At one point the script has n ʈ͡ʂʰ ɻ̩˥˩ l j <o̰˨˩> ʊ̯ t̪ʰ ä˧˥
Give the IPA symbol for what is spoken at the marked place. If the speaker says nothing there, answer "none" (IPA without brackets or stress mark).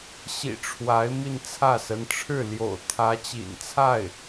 o̰˨˩